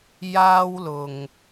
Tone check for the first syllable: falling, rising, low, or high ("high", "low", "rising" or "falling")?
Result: high